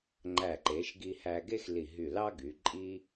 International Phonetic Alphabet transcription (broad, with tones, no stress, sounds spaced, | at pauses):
ŋ͡ǃ æ˧˩ ǃ e˩˧ ʃ ɡ i˧ h æ˧ ɡ e˥ x l i˧˩ ɦ y˧˩ l ɑ˥ ɡ y˩˧ ǃʼ i˥